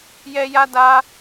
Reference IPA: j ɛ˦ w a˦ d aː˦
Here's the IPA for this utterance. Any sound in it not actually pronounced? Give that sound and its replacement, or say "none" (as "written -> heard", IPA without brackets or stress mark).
w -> j